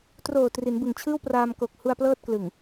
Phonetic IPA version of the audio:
t r oː˨˩ t r i˩˦ n b ɯ˨˩ ŋ t͡ɕʰ ɯː˥˩ w p r aː˧ m k o˨˩ k̚ h u˧ a̯ p l ɤː˥˩ t̚ k l ɯ˨˩ ŋ

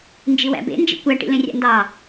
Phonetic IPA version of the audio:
n d͡ʒ i w æ̰ b ḛ n d͡ʒ ḭ kʷ æ ʈ ḭ l ẽ rʲ ɑ̰ n d ɑ

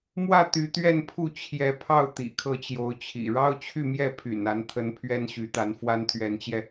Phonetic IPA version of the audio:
m w ä˥˩ t̪ y˧˥ t̪ ɥ ɛ˥˧ n pʰ u˥˩ t͡ɕʰ j ɛ˧˥ pʰ ɑ˥˩ ʊ̯ t̪ ḭ˨˩ kʰ ɤ˥˩ t͡ɕ j o˧˥ ʊ̯ t͡ɕʰ ḭ˨˩ ɻ ɑ˥ ʊ̯ t͡ɕʰ y˥˧ m j ɛ˥˩ pʰ y̰˨˩ n a˧˥ n t̪ʰ ə˧˥ n pʰ ɥ ɛ˥ n ɕ y˧˥ t̪ a˧˥ n f w a˥ n t̪ʰ ɥ ɛ˧˥ n t͡ɕ j ɛ˧

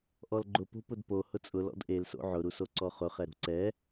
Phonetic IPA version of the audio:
ʔ ɔ l ɡ͡ǃ ʊ p o̤ p ʊ d p o h ʊ t͡sʼ ʊ l ɔ̰ d ʔ e l s o̰ ʕ ʊ ɾ u s o ǀ ɔ χ ʊ χ ɛ ɾ ṳ ǀ ɛ

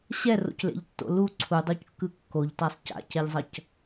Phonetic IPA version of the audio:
ɕ ɛ r o̰ c l ḛ ʎ tː o̰ l u ǀʰ u dˤ u c kː ɯ kː o ʎ t a sˤ c a̰ c ɛ ʎ zˤ ʌ c

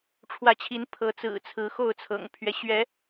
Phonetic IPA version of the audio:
ʈ͡ʂʰ w ä˨˦ t͡ɕʰ i˨˦ n pʰ ɤ˨˦ t͡s ɹ̩˨˩ t͡sʰ ɹ̩˨˦ x o˥˨ ʊ̯ t͡sʰ ɤ̰˨˩ ŋ pʰ ɥ ɛ˦ ɕ ɥ ɛ˨˦

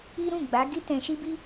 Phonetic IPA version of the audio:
i˦ ɾ ũ˦˨ ɡ͡b a˨˦ ɡ i˦ t ɛ̃˦ ʃ i˦ b i˦

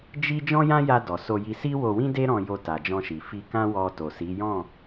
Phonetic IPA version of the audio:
d͡ʒ i˦ d͡ʒ ɔ̃˦ j ã˦ j a˧ d ɔ˨ s o˧ j i˧ s i˦ w o˧ w ĩ˦ d e˦ ɾ ɔ̃˧ j o˧ t a˨ d͡ʒ ɔ̃˧ ʃ i˨ f i˧ k ã˦ w ɔ˧ t o˨ s i˨˦ j ɔ̃˦˨

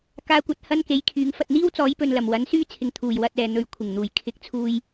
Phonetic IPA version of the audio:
k aː˧ kʷ ɐ˧ t̚ h ɐ˥ n k e˨˥ j kʰ yː˨˥ ŋ f ɐ˨ t̚ n̪ iː˥ w t͡s ɔː˨˥ j p ɵ˨ n l ɐ˨˩ m w ɐ˨˥ n s yː˥ t͡sʰ ɪ˨˧ ŋ t̪ʰ uː˨˩ j w ɐ˧ t̚ ɛː˨ n̪ ɵ˨˥ ɥ kʷʰ ɪ˨˩ ŋ n̪ uː˨ j kʰ ɪ˨˥ k̚ t͡sʰ uː˧ j

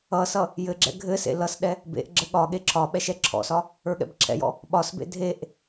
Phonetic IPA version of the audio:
ʌ s ʌ | j ɘ ɡ͡ǁ ɛ̰ ɡʱ ɘ s ḛ l ʌ s ɗ ɛ | b ḛ ʔ ɡ͡ǁ ɘ ɠ ɒ ɠ e ǁʰ ɒ ɓ ɛ ʃ ɛ ǁʰ ɔ̰ s ɒ | ə˞ ɠ ɛ̰ b ǁʰ ɛ̰ j ɔ̰ | ɓ ɒ s b ḛ dʱ e ʔ

